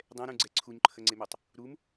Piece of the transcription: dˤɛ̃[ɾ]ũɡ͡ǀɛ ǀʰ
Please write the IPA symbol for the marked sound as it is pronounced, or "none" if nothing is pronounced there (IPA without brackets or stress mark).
ɾ